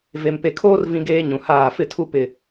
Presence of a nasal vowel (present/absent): present